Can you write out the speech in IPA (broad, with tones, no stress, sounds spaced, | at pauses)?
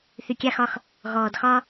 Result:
θ y˨ kʲ a˧ x ɒ˧ x | ɣ ɔː˨ d x ɒ˦